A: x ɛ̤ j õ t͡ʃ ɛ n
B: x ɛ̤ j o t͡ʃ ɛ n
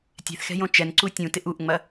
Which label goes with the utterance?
A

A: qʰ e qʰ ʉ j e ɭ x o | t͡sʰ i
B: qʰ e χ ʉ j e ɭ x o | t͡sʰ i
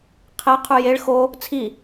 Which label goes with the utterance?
A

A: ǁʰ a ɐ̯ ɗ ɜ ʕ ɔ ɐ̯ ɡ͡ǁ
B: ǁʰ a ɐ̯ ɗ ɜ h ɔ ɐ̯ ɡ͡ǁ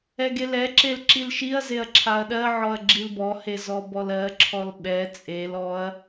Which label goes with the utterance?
A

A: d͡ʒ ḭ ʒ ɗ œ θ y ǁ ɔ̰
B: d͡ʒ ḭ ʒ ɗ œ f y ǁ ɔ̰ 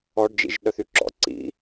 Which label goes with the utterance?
A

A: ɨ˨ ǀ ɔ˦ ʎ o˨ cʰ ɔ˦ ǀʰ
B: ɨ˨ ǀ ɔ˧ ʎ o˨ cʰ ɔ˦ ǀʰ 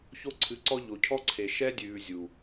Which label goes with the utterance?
B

